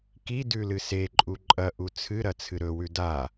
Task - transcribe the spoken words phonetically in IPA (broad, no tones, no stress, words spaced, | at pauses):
ki dʉlɨseǃʼu ǃʼɐʔu t͡sʰɨɾɐ t͡sʰɨɾɵwʉ da